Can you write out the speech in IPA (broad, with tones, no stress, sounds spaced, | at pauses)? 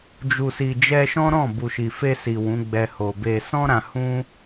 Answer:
d͡ʒ u˨ s i˨ d͡ʒ ɛ˧ ʃ ɔ̃˦ ɾ ɔ̃˦˨ b u˨ ʃ i˨ f e˧ s i˨ w ũ˨˦ ɡ͡b ɛ˧ h o˨ b e˨ s ɔ̃˧ ɾ ã˧ h ũ˦